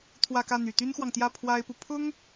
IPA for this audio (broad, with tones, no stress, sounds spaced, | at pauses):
t̪ʰ w ä˥˧ k ä˥˩ n̪ y˨˩ t̪ y˥ n x w ɑ˨ ŋ t̪ j ä˥˩ pʰ w a˥ ɪ̯ p u˨ pʰ ʊ˥ ŋ